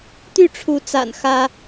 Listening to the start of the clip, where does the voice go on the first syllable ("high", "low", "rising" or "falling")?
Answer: falling